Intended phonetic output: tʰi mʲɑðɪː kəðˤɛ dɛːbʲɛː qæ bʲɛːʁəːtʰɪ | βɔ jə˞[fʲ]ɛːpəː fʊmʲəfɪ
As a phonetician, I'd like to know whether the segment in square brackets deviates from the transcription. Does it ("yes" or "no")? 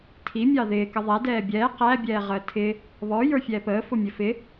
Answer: no